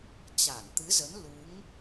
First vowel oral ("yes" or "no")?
yes